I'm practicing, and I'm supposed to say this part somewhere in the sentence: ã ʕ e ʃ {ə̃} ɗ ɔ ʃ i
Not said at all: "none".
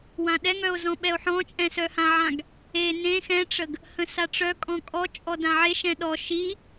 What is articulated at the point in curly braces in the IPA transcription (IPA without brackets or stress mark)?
ɛ̃